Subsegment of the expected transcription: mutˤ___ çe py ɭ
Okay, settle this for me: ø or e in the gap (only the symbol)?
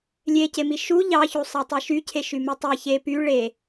e